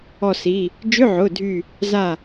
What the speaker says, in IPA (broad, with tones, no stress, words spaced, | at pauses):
ɔ˧˩si˩˧˩ | d͡ʒʏ˧˥˧ʕʊ˩˧˩dʱy˧˩ | za˥˩